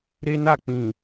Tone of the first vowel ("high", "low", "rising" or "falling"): high